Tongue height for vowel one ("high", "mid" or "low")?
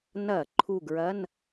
low